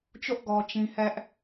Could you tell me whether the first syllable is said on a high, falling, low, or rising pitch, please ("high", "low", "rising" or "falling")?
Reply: high